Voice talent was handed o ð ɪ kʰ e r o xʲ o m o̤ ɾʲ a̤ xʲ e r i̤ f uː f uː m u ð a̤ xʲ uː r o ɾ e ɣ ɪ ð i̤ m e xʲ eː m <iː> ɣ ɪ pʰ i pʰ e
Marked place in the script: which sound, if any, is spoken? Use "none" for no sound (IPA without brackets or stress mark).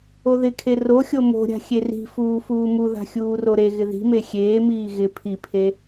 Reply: iː